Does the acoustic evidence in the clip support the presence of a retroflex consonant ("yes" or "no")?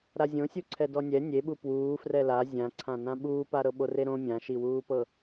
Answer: no